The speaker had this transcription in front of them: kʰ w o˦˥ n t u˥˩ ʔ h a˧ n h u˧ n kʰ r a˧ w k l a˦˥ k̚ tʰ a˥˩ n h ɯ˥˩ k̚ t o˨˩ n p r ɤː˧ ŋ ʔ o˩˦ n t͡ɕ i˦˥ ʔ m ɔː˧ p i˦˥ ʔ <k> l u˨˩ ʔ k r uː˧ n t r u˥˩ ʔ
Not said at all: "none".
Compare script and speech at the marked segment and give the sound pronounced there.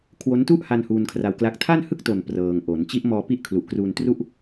kʰ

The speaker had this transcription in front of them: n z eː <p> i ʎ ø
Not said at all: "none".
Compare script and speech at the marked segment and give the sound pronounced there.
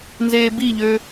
b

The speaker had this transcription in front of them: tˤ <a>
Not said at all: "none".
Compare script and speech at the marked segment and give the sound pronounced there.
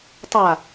a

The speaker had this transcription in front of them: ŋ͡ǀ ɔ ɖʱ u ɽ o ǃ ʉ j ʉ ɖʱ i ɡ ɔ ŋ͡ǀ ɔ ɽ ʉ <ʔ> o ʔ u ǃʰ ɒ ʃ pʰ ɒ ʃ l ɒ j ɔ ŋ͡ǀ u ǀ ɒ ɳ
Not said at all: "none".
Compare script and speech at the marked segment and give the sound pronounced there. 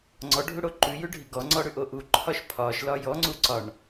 ʔ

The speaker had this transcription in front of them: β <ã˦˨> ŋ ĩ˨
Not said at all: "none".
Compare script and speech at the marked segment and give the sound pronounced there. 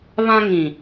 ã˦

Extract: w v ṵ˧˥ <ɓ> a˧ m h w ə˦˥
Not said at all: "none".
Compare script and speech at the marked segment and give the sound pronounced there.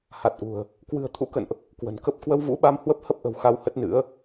ɓ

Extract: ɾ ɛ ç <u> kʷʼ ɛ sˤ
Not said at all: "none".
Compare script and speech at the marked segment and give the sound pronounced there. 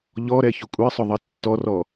ʊ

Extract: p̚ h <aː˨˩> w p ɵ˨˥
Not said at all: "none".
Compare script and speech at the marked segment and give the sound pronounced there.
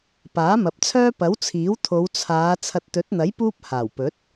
aː˨˩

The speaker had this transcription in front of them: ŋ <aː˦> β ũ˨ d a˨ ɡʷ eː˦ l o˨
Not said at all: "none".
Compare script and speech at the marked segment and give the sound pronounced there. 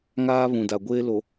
aː˦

